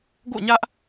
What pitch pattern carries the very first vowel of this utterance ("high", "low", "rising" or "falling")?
falling